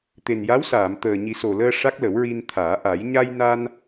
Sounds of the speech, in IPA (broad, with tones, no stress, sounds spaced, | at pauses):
t̪ e˨˩ n j a˧˥ w s aː˨˩˨ m t̪ əː˨˩ ɲ i˨˩˦ s o˨˩ l əː˧ ʂ a˦˥ k̚ l ə˨˩˦ w ɹ i˧ n t̪ʰ aː˨˩˦ ʔ a˨˩˦ j ɲ a˧ j n a˧ n